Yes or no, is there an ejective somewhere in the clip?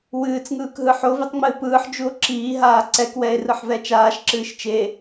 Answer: no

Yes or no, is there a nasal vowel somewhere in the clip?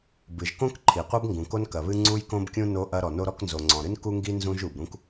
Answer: yes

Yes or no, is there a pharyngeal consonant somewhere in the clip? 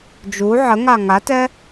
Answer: yes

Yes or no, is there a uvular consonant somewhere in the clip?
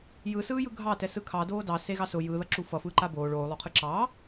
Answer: yes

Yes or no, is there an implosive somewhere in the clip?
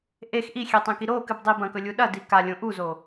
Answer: yes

